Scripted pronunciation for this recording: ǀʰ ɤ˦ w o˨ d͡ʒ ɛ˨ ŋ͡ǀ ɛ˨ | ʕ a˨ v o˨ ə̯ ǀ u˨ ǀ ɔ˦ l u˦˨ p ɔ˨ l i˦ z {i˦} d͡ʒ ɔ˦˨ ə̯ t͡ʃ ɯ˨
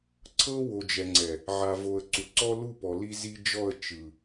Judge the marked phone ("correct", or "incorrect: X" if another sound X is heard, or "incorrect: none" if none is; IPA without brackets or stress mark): correct